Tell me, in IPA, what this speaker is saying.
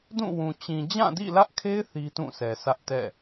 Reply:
d ũ˦˨ w ũ˨ t͡ɕ ĩ˨ d͡ʑ ã˦˨ d ḭ˦˨ l ä˦ ʔ kʰ e˦ ɪ̯ θ i˦ t ũ˦˨ s ɛ˨ s ä˦ ʔ t ɛ̰˦˨

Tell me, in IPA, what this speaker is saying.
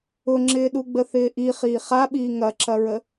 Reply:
ʊ ŋ͡ǁ ɪː ɗ u ɡ͡b ə θ ɪː ʔ i χ iː χ a ɓ iː ŋ ɐ ǁ ɐ ɹ ə

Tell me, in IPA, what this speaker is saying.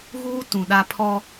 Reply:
ɣ uː˦ t ũ˨ ɗ a˦ pʰ ɔ˦

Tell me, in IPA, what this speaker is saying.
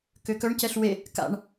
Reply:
k ø k œ ɳ c ɛ ɬ w e | k a̰ ɳ

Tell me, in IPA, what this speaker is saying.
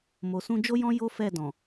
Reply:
m o˨ s ũ˧ d͡ʒ o˦ j ɔ̃˦ j o˦ f ɛ˦˨ d ɔ̃˨

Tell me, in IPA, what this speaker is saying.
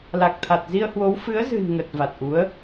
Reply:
l a˨˩ k̚ t̪ʰ a˨˩ t̚ z i˧ ə̯ h w o˨˦ w f ɨ˨˦ ə̯ z ɨ̤˨˩ n ŋ ə˨˩ t̚ v a˨˩ t̚ ʔ u˨˦ ə̯

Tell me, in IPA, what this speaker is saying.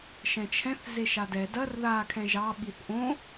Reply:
ʃ ɛ̃ t͡ʃʰ ɛ̃ θ z e ʃ a d ɛ d ɐ r ð a kʰ ɛ̃ ʒ ɑ ɓ i θ ʔ õ

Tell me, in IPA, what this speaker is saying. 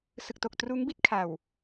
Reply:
s ɯ˨˩ k̚ t o˨˩ k̚ t r uː˦˥ ŋ b i˥˩ t̚ kʰ a˨˩ w

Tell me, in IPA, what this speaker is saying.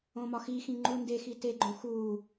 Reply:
õ m ɒ x i x ĩ ŋ͡ǃ u n d e x i t e ɡ͡ǃ õ x u

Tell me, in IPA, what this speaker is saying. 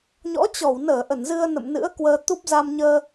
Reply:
ɲ ɔ̰˧˥ t͡ɕ ɔ˧˩ w n əː˧˩ ʔ ə˧˩ n z ɨ˧ ə̯ n ə̰˧˨ m n ɨ̰˧˥ ə̯ k w əː˧ t̪ u˦˥ p̚ z a˧ m ɲ əː˧

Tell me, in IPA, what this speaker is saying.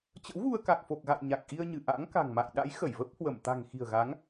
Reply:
t͡ɕ ə̰˧˥ w ɣ u˧ ə̯ k a˨˩ k̚ f o˨˩ k̚ ɣ a̰˧˨ j ɲ a˨˩ k̚ ʔ i˧ ə̯ ɲ ɨ˧˩ ʔ a̰ː˧˥ ŋ k a̤˨˩ ŋ m a̰˧˨ j ɗ a̰˧˥ j x ə˧˩ j v ə˦˥ p̚ h w ə˧˩ m t̪ a̤˨˩ ŋ x i̤˨˩ ə̯ ɣ a˨˦ ŋ

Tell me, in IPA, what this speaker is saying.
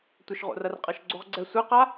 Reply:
tʷ ə ʃ ʁ o̰ r ɐ r qʼ ɐ ʃ ɡ͡ǀ o ʁ ɡ͡ǀ ɛ sʷ ɛ q a

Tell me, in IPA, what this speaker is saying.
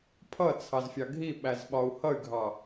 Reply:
pʰ ʌ t͡sʰ ɑ z fʲ ɑ ɡʱ i ɓ æ z ɓ ɒ u̯ h ʌ y̯ ɡʱ ɑ

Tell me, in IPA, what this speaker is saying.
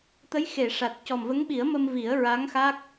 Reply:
t̪ ə˧˥ j x e˨˩˨ ʂ a˨˩ t̚ c ɔ˨˩ m v ə˧˥ ŋ ɓ i˨˩˦ ə̯ m ə˧ m v i˨˩˦ ə̯ ɹ a˧˥ ŋ x a˦˥ k̚

